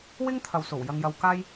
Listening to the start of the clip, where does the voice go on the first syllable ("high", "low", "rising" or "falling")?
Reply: high